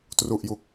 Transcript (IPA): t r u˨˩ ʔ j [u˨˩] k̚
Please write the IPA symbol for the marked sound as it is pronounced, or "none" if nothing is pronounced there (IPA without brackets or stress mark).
u˨˩